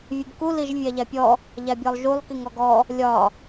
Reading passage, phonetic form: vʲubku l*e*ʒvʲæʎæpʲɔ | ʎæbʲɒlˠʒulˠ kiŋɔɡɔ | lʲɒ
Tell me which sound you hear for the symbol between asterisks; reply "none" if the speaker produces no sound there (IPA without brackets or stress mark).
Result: i